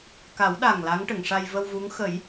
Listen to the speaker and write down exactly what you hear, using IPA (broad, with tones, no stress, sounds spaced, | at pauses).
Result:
k a˨˩˦ w ɗ a˨˩ ŋ l a˧˥ ŋ ʈ ə˨˩˨ ŋ ʂ a˧ j v ə˧ w v u˧˥ ŋ x ə˨˩˦ j